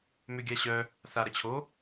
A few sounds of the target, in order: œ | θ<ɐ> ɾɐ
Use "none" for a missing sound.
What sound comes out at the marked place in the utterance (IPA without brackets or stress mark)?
a